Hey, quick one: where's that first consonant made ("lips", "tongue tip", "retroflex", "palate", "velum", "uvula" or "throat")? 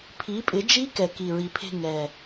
lips